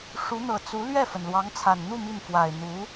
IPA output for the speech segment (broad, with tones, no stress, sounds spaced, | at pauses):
ʂ u˧˥ n̪ ɤ˨˩ t͡s u˧˥ l ɥ ɛ˥˩ f ə˩ n l w ɑ˧˥ ŋ t͡sʰ a˨˩ n n̪ u˥˧ m i˥˩ n f w a˨˩ ɪ̯ n̪ u˧˥